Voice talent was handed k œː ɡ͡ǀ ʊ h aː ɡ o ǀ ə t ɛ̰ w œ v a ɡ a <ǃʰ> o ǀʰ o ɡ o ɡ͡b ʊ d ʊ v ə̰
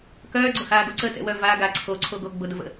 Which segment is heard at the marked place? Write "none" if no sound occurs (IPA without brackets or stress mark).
ǀʰ